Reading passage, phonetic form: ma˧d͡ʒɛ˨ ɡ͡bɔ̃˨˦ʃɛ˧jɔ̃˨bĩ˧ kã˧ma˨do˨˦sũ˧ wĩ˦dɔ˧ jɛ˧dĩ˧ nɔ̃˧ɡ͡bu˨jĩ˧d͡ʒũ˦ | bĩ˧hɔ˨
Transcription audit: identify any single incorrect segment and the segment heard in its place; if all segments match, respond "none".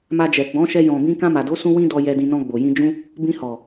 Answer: u˨ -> o˨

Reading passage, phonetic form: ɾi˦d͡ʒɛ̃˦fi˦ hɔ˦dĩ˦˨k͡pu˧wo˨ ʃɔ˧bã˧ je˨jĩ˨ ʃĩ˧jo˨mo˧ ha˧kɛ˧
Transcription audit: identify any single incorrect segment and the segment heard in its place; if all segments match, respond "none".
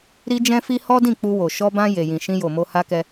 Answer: none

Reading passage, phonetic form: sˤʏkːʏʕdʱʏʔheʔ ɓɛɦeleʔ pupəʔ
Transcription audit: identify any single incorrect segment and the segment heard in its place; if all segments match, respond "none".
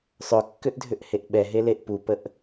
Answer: ʕ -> ʔ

